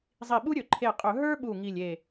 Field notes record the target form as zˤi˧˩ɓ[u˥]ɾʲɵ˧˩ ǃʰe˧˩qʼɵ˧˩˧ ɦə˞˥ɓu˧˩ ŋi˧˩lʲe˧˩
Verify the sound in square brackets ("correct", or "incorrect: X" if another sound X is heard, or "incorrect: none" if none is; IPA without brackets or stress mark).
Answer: correct